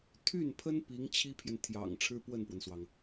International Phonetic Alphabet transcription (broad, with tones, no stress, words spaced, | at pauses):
t̪ʰy˥˩npʰə˥n pi˧˥ŋt͡ɕʰi˥pʰjɛ˨n t̪ʰjɑ̰˨˩ŋ ʈ͡ʂʰɻ̩˥pwə˥˩npwə˩nswɑ˩ŋ